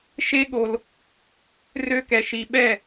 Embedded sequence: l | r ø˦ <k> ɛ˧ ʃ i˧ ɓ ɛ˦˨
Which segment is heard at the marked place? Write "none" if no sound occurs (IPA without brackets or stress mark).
k